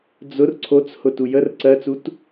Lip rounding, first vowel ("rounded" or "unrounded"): rounded